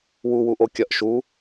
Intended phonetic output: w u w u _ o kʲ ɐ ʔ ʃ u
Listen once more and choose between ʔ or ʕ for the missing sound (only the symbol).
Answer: ʔ